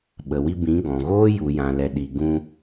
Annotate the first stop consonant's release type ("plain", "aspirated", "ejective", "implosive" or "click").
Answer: implosive